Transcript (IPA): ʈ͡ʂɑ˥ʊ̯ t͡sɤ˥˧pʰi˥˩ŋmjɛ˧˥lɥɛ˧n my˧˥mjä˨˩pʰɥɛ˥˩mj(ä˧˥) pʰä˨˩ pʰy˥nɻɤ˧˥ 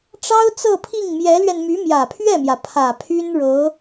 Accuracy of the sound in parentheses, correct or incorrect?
incorrect